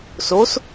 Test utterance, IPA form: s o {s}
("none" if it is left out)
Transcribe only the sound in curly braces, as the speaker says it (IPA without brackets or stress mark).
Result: s